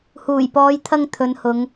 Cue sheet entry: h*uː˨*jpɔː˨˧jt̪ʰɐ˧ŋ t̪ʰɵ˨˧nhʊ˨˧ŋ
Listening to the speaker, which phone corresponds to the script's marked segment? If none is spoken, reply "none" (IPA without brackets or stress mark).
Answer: uː˨˩